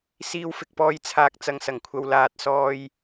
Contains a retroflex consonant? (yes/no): no